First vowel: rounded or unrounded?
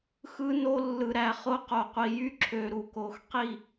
unrounded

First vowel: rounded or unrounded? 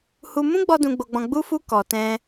rounded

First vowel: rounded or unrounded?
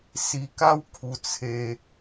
unrounded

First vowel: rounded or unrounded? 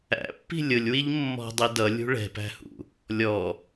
unrounded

